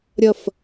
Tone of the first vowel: falling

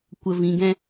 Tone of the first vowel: low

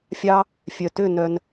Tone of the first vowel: high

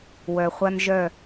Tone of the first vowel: low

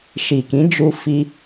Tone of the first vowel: low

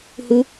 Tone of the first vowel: high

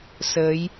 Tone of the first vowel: rising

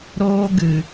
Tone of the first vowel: high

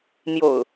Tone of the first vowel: low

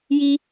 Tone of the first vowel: high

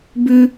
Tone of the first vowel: high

